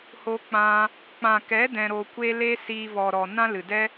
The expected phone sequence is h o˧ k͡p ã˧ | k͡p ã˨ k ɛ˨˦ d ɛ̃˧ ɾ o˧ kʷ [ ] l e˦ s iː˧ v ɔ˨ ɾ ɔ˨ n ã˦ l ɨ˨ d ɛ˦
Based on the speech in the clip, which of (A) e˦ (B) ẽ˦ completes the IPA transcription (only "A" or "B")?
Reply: A